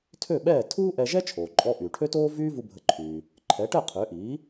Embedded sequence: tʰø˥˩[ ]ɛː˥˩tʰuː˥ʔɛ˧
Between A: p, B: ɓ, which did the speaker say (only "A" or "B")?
B